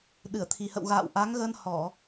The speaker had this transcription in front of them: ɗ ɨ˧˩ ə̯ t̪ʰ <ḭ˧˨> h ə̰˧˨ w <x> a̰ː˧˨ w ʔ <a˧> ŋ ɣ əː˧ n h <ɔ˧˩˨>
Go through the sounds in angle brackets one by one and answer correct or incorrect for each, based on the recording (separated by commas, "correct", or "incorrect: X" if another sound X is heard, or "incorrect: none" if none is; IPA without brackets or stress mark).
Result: incorrect: i˨˩, incorrect: ɣ, incorrect: a˨˦, correct